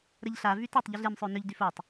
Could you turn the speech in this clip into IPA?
ɾ ə ʎ ɬ a v y t ɐ tˤ ʎ e ɮ e m sˤ ø n ʏ ʎ d y f o tˤ

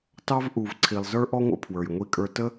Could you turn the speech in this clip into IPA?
t ɑ˥ v ʔ u˩ v ǀʰ i˩ lˠ z ə˞˥ ʔ ɔ˥ ŋʷ ə̰˧ pʰ w ə˞˩ j ŋʷ i˧ kʼ ə˞˧ t ə˥

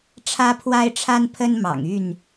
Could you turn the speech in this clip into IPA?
ʈ͡ʂʰ ä˦ pʰ w a˦ ɪ̯ ʈ͡ʂʰ a˦ n pʰ ə˦ n m ɑ̰˨˩ ŋ y˥˨ n

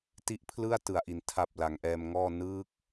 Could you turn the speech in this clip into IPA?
t i˦˥ ʔ pʰ l ɯ˥˩ a̯ t ɯ˨˩ a̯ ʔ i˩˦ n tʰ a˨˩ p̚ l a˩˦ ŋ ʔ ɛː˧ m ŋ ɔː˥˩ n ɯː˦˥ k̚

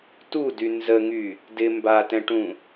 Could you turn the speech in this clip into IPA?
t u d y n z ə ŋ y | d ɪ m b a t ɛ̃ ʈ ũ

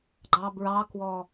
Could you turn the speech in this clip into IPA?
ɡ͡ǃ ɑ b ɹ ɑ k w ɔ

